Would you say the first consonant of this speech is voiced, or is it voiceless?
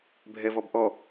voiced